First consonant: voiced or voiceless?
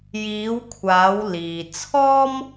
voiced